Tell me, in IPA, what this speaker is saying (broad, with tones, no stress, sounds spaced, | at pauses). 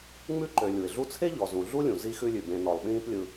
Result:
ŋ͡m ʉ˥ ǃ ø˨ lʲ u˩ ɪ̯ ɮ u˦ t͡sʰ e˥ ʎ ɔ˨ z ũ˨ ɮ u˥ lʲ ũ˩ z i˦ x ʉ˦ lʲ ʉ˩ b ẽ˨ n ɔ˩ lˠ ɓ ĩː˦ p lʲ ɯ˨